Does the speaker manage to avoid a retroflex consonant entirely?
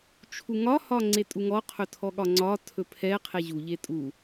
yes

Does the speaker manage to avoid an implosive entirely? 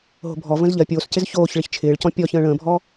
yes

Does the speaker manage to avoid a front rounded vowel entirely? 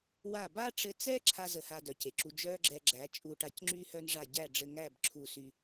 no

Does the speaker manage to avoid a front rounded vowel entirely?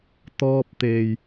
yes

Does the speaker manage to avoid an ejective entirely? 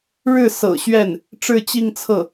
yes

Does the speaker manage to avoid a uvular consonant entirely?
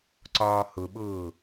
yes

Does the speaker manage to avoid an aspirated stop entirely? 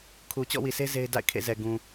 no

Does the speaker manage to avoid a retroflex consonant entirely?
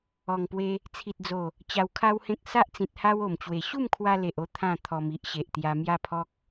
yes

